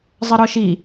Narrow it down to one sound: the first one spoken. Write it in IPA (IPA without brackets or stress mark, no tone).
zˤ